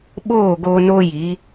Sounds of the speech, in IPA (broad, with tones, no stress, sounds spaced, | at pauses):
ɓ oː˦˨ ɡ o˧ n o˦ j i˨˦